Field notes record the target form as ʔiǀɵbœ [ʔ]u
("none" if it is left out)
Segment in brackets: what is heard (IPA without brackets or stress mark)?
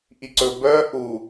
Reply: ʔ